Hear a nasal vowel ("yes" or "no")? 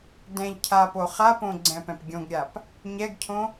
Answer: yes